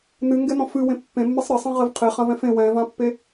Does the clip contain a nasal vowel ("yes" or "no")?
yes